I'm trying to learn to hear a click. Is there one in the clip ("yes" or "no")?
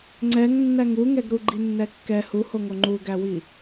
yes